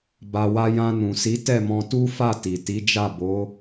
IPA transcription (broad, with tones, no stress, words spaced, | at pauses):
ba˨wa˧jã˧ nũ˨si˨˦ tɛ˦˨ mɔ̃˧tu˦fa˦˨ ti˨ti˨˦d͡ʒa˦˨ bo˨˦